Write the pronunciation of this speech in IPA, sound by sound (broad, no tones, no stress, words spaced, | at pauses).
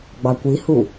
ɡ͡bɑkʷihu